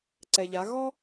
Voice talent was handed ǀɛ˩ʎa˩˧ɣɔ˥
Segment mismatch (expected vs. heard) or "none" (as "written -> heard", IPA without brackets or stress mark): none